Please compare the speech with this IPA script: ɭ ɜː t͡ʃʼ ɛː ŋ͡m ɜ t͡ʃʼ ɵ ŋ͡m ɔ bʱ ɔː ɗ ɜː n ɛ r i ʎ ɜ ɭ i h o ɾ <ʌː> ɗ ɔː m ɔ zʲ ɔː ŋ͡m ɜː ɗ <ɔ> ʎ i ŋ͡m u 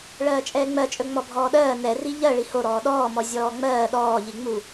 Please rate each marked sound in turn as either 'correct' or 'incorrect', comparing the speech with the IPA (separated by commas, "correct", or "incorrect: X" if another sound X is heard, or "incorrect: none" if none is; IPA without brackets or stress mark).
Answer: incorrect: ɔː, incorrect: ɔː